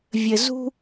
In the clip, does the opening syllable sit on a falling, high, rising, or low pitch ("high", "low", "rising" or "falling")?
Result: low